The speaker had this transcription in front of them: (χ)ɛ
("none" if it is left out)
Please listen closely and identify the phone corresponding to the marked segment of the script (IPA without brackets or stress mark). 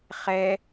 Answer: χ